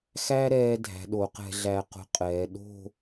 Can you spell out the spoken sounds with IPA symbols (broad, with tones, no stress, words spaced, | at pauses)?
xæ˥ɾɛː˧ dʱæ̤˩˧ ɗo˩˧qɛ̤˧ɮæ˧qo̤˧ qʼɛː˩˧ ɗo̤˥˧